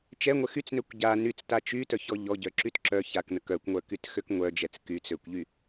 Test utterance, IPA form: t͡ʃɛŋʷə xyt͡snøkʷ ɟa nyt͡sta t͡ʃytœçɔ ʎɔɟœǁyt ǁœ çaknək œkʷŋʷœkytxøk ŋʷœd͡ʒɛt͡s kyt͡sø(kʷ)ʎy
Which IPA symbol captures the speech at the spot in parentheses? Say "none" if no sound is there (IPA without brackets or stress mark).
kʷ